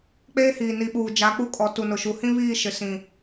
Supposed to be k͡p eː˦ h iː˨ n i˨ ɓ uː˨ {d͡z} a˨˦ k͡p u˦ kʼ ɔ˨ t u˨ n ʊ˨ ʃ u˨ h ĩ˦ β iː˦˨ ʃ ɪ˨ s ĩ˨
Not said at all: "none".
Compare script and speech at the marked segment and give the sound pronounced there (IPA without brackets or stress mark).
d͡ʒ